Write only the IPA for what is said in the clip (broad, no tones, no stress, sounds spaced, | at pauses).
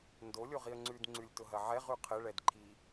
n d o lʲ o ʁ i ə̯ ŋ͡ǀ ʉ d ŋ͡ǀ ʉ lʲ t ʊ ɦ ɐ ʕ ɛ ʁ ʉ qʰ ɘ ɭ ɛ d ǃʰ i